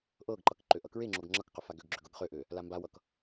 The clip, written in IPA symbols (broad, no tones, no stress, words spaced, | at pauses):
ʔɤɡǃʌk ǃøʔʌkɹeŋ͡ǁoɡ ŋ͡ǁʌkqʏ faɡøɡɡ͡ǁʏ ɡɤɡχøʔø | lambawʌk